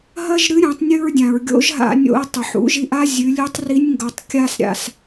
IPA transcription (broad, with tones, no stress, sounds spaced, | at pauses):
ɦ ɐ˥ ʒ ɾ ɨ˧˥ ɾʲ õ˩˧ tˤ nʲ ʉ˧ ɹ dʲ ã˩ ɹ ɡʲ o̰˧˥ ʒ ɦ a̰˧ nʲ o̰˧ ə̯ tˤ ɵ˩ ħ ṵ˩˧ ʒ i˧ ʔ a˥ zʲ ʉ˩˧ lʲ ʉ˧˥ tˤ r i˧˥ nʲ ŋ ɡ ɐ˩˧ tˤ kʲ a˧ s ɾʲ a̰˩ s